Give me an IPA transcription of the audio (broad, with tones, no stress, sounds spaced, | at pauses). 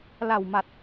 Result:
l a˨˩ w m a˨˩ t̚